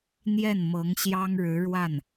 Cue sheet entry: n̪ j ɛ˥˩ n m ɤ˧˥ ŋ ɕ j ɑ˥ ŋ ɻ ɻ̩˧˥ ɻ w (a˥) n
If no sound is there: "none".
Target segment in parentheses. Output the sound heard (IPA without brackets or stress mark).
a˥˩